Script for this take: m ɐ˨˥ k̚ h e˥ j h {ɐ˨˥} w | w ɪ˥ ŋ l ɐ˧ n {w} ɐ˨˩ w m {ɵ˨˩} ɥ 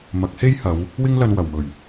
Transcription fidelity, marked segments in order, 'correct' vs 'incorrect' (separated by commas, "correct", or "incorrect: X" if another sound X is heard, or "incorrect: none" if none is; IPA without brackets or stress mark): incorrect: ɐ˨˧, correct, correct